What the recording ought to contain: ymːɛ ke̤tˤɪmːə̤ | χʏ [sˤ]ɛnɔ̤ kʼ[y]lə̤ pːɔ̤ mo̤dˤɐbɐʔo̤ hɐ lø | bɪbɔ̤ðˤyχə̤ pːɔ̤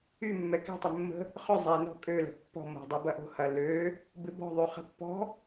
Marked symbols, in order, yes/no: no, no

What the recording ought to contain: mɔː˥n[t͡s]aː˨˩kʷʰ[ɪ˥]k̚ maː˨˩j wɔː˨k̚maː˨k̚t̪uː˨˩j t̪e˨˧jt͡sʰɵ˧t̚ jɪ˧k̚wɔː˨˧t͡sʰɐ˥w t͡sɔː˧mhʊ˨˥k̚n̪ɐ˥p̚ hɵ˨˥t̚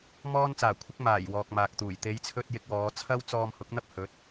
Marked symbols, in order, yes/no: yes, yes

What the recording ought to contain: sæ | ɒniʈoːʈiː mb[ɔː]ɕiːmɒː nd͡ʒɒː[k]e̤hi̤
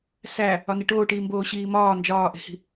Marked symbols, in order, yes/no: no, no

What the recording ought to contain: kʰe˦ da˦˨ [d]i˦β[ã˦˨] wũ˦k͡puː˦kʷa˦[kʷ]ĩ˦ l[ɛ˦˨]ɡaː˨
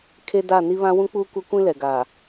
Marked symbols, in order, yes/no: no, no, yes, no

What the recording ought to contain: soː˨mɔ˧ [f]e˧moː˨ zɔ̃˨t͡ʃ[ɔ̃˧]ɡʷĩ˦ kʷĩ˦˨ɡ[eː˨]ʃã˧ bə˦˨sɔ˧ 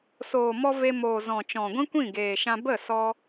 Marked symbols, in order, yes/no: no, no, yes

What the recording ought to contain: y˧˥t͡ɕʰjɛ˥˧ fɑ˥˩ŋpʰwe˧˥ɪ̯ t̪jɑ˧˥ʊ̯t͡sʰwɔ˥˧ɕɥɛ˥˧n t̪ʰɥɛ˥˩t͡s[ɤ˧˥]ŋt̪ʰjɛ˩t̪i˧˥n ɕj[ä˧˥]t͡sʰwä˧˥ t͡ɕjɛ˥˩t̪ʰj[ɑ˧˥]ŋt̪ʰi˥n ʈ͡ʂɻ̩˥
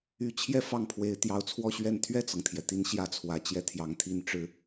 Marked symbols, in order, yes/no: no, no, yes

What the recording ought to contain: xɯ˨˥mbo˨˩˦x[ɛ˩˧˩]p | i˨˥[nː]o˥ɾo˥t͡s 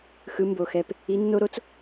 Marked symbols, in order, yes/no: yes, yes

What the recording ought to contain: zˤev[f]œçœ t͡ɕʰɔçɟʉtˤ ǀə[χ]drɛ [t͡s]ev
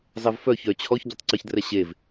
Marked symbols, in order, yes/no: yes, no, no

